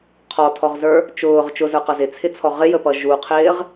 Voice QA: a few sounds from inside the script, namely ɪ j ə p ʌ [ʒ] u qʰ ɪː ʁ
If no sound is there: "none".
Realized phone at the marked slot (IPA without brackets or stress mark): ʒ